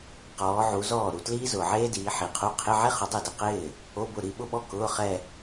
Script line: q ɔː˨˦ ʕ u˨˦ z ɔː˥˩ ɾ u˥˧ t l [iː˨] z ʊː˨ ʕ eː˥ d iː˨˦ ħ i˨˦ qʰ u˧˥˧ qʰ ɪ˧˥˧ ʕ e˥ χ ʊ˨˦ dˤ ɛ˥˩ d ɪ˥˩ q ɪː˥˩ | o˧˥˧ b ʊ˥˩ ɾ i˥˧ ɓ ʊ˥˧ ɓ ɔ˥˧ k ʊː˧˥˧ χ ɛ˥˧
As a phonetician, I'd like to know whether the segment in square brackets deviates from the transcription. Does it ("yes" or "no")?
yes